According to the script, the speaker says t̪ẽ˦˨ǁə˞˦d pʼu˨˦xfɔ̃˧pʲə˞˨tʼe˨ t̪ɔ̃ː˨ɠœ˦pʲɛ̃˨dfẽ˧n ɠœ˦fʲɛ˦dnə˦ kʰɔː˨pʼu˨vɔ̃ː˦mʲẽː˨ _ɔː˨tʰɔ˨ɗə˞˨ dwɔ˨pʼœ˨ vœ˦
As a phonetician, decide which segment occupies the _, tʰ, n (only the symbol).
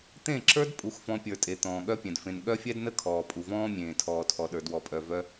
tʰ